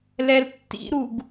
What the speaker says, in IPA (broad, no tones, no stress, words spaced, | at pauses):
lɛltːḭɾuɡ